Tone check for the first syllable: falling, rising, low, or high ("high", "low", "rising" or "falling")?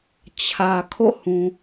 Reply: low